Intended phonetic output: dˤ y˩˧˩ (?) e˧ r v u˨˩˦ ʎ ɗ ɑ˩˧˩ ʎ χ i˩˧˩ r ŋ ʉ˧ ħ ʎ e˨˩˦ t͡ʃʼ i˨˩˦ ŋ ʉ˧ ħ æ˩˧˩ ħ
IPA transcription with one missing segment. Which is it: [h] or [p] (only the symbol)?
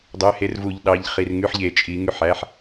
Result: h